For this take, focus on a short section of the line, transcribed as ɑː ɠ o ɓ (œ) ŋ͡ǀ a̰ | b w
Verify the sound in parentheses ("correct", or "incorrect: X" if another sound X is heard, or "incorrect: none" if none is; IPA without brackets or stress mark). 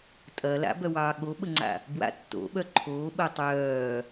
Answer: incorrect: ə